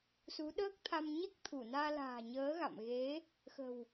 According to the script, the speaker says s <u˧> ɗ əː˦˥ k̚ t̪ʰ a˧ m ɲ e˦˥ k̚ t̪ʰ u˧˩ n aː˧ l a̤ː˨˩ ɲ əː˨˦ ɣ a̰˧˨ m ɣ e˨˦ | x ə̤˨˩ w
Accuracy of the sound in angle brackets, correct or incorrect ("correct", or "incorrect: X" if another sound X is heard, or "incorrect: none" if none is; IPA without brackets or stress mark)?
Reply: incorrect: u˨˦